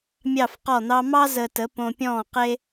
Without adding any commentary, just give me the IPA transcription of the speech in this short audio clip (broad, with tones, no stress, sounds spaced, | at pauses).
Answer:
mʲ ɑ˧˩ f q ɔ˧˩ n̪ ɑ˧ m ɑ˥ z əː˧ t ə˨˥ p õ˧ pʲ ɔ̃ː˥˨ q e˥